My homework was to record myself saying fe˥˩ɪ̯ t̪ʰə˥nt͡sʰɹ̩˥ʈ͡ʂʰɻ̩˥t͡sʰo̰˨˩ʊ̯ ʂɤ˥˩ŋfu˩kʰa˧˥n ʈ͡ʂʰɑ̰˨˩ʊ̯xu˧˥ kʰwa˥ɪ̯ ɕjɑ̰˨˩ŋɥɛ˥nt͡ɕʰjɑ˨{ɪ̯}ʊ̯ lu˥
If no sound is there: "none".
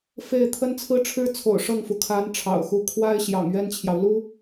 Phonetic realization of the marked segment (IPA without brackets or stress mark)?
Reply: none